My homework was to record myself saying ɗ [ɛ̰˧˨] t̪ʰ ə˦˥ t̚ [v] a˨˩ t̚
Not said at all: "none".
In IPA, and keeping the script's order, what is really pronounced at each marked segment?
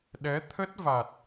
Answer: ɛ˨˦, v

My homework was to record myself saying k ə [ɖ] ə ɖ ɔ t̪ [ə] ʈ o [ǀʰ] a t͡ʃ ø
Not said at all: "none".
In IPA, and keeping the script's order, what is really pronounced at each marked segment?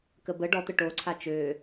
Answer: b, ə, ǀʰ

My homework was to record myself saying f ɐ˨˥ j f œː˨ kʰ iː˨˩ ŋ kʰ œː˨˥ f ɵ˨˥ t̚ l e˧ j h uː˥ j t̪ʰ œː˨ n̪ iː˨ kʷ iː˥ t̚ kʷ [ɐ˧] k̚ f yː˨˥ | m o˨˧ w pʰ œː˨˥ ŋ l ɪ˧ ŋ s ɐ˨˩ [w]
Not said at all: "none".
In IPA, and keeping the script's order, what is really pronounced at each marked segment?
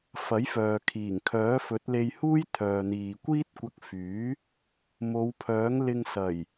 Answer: ɐ˧, j

